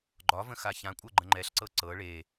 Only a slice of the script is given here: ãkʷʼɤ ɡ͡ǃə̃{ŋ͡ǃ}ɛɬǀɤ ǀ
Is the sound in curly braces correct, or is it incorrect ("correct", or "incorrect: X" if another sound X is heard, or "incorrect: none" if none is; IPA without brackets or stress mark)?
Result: correct